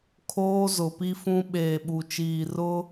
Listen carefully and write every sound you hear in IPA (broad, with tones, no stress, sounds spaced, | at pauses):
kʰ oː˦ z ʊ˨ p i˦ f ũ˦ ɓ eː˨ ɓ u˨ t͡ʃ iː˨ r ʊ˦